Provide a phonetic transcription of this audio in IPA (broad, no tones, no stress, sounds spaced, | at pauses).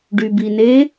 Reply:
ɖ y b i n e